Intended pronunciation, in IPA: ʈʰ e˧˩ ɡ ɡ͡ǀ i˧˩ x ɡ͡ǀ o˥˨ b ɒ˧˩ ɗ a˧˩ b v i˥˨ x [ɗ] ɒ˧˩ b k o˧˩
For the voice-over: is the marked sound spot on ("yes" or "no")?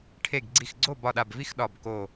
yes